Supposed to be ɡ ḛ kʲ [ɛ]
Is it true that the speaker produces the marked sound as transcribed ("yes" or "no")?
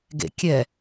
yes